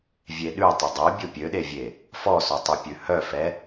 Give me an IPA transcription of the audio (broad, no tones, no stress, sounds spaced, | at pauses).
vʲ e ɗ ʉ tˤ ɵ dˤ œ bʲ o pʲ ø ɗ e vʲ e | f ɔ s o tˤ ɛ pʲ ʉ h œ f ɛ